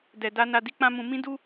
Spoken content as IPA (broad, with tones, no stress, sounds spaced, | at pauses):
d ɛ˨ d a˧ n a˧ d i˦ k͡p ã˦ m ũ˧ m ĩ˦ d u˦